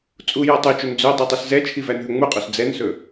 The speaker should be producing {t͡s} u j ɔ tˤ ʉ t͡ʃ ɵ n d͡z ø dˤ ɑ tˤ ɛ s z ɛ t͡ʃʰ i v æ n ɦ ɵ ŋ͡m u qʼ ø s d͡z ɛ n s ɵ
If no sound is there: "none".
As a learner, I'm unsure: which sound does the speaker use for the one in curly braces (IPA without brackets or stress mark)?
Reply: t͡sʼ